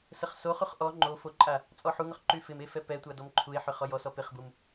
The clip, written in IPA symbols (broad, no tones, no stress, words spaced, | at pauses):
səχsoχuχ ʔɔ ŋ͡ǃo foǃʼa | t͡sʼɔħuŋʊχ ǃyfɪme fɛpɛtʷa dɔmǃʰue̯ħʏ χɔjɔsɔ pɪχbum